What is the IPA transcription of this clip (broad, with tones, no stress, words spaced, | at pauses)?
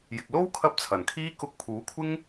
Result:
jɪ˨k̚lo˥w kʰɐ˥p̚t͡sʰɐ˨˩n kʰiː˥ kʊ˧k̚pʰuː˨˥kʷʰɪ˥ŋ